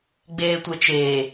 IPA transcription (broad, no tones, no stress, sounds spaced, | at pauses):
ɡ͡b eː tʷ e t͡ʃ e